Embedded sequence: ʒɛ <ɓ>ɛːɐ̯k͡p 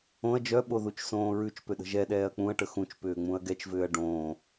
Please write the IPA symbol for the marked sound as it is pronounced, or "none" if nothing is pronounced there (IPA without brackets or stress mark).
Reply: ɗ